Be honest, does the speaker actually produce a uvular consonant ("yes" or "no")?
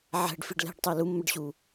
no